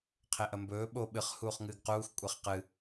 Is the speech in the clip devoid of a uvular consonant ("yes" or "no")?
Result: no